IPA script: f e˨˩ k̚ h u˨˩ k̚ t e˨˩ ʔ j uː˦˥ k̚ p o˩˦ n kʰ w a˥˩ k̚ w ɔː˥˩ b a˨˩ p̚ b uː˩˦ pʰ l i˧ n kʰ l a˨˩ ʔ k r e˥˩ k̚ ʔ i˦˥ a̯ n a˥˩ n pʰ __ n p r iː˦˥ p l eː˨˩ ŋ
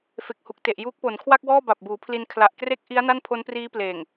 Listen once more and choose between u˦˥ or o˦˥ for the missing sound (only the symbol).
o˦˥